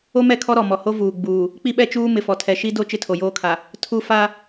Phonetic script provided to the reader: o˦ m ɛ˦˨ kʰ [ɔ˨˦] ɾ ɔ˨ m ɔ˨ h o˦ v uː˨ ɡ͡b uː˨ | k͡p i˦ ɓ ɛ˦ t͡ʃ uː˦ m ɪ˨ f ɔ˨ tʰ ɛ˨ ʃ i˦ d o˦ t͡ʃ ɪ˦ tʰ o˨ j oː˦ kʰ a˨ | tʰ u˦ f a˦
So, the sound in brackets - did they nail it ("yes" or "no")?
no